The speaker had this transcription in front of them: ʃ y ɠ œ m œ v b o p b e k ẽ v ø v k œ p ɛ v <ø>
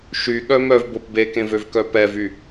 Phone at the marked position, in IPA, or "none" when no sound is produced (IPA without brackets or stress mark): y